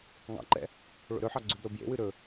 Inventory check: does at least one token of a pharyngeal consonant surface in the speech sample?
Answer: yes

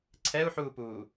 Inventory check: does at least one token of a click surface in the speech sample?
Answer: yes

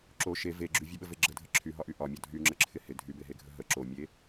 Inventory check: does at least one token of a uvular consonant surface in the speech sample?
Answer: no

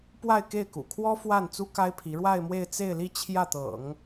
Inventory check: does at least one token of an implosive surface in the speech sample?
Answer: no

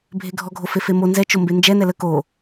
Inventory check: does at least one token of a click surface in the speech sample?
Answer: no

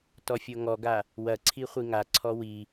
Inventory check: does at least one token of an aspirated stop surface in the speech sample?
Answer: yes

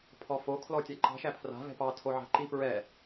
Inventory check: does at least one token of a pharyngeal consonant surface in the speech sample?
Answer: yes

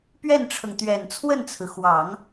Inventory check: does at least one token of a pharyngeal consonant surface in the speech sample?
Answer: no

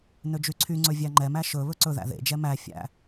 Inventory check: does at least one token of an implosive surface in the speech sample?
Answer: no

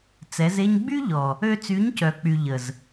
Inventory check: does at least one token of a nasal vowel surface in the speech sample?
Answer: no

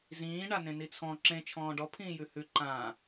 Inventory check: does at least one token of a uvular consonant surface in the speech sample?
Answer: no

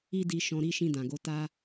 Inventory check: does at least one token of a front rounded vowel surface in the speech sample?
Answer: no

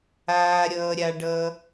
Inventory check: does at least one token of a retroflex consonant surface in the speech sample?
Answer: yes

